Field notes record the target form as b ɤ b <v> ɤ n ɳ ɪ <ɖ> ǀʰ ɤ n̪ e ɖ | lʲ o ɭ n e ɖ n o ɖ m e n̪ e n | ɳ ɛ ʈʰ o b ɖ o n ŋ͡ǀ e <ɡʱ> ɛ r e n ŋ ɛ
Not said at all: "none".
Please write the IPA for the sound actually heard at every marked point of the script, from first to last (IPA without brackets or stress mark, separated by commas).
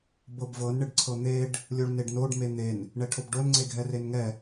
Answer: v, ɖ, ɡʱ